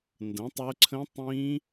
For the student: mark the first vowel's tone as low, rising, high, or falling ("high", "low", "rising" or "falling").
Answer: rising